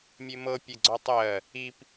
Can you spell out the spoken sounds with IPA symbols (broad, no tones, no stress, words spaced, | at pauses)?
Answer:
mʲemɤ pʲeɡ͡ǀɔtˤɜ | ip